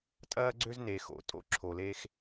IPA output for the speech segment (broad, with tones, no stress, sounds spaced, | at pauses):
tʼ ɐː˥ ɡ͡ǀ ø˥ z n e˧ x o̰˧ tʼ o̰˥ ǁʰ o˧ l e˥ x